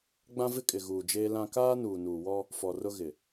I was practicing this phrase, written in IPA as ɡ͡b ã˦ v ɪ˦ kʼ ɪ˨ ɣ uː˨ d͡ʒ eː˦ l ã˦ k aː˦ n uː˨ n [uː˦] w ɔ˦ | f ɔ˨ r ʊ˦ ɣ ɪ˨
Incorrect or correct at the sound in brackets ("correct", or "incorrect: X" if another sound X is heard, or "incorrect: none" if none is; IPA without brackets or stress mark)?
incorrect: uː˨